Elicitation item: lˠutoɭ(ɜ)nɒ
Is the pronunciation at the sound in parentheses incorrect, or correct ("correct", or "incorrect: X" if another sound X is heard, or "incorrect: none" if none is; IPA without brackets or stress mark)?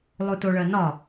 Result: correct